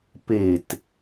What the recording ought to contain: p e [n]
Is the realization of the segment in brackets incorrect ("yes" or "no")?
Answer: yes